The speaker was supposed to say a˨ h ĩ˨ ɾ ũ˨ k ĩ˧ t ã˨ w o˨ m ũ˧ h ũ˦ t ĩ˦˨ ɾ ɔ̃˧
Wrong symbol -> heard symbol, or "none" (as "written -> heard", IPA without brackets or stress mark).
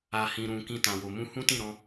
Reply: none